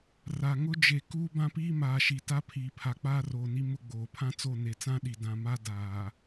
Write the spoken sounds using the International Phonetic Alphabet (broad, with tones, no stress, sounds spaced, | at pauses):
r a˨ ŋ ʊ˦ d͡ʒ e˨ k uː˦ b ã˦ p iː˦ m aː˨ ʃ i˨ t a˦ pʰ iː˨ pʰ a˨ k͡p aː˦ r oː˨ n i˦ m ʊ˦ ɡ͡b oː˨ pʰ ã˦ t͡s o˦˨ n e˨ t͡s ã˦ ɗ i˨ d ã˨ m a˦ d aː˨